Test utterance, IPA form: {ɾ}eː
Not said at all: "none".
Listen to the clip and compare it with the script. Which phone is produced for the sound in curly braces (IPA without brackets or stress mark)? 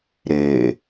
ɾ